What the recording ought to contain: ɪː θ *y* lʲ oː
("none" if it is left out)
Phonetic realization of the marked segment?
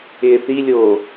i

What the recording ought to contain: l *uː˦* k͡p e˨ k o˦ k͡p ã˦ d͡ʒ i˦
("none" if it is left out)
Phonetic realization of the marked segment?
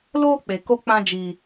oː˦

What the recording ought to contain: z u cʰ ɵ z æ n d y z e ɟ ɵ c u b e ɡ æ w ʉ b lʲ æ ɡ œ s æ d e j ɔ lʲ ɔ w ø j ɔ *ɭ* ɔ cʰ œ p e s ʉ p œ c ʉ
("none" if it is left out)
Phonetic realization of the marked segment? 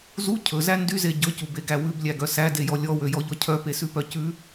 ʎ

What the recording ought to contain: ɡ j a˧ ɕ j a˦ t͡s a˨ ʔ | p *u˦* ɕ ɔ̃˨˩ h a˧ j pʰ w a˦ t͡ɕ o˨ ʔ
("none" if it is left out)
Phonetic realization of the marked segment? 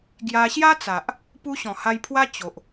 u˦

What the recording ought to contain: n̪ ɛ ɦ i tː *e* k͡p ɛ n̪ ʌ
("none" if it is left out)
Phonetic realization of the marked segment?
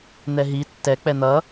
ɛ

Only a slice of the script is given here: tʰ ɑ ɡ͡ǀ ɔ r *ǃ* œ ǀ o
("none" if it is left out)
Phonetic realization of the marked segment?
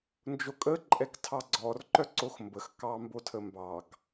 ǃ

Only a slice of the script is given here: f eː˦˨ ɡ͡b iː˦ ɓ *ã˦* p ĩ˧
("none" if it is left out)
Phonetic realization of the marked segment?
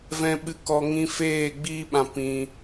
ã˧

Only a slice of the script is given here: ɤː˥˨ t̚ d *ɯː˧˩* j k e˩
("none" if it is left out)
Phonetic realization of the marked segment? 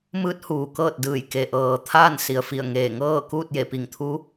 ɯː˧˩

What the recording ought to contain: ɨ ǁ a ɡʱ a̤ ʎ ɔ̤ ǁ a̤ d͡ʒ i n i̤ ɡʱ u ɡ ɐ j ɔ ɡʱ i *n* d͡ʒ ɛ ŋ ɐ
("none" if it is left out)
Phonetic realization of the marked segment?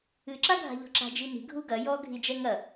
none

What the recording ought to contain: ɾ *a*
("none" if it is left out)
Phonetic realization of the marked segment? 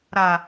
a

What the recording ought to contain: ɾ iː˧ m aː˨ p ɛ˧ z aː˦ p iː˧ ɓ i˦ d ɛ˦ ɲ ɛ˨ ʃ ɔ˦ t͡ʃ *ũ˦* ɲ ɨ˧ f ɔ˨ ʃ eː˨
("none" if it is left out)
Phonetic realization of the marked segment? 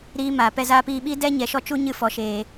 u˦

